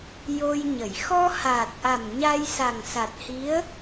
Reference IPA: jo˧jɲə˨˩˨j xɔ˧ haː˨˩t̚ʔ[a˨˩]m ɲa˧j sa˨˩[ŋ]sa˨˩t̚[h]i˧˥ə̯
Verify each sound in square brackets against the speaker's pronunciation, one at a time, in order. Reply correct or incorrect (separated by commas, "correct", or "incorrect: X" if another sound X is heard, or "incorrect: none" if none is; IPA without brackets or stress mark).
correct, correct, correct